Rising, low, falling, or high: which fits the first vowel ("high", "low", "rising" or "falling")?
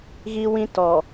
high